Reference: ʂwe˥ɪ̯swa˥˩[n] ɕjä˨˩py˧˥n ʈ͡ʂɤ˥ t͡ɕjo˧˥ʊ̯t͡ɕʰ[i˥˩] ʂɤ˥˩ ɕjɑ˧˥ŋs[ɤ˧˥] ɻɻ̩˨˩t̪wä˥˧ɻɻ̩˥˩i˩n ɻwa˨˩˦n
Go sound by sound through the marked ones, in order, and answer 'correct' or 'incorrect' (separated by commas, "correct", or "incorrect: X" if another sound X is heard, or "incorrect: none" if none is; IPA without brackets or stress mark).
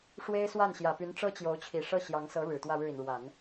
correct, incorrect: i˨˩, correct